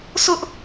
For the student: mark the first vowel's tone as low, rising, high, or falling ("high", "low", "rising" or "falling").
high